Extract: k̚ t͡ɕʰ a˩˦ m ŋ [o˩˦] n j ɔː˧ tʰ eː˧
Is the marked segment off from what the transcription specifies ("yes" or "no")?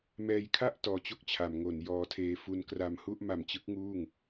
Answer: no